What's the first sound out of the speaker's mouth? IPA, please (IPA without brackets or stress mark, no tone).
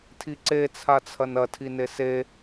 tʰ